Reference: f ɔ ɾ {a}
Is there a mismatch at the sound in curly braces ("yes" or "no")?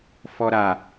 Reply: no